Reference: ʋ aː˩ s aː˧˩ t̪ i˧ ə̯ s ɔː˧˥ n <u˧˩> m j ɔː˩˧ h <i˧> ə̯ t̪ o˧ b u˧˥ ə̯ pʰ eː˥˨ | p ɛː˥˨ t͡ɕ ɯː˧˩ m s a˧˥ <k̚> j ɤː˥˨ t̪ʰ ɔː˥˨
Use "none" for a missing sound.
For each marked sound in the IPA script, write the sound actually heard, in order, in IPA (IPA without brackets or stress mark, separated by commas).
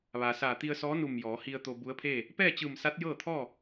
u˧˩, i˧, t̚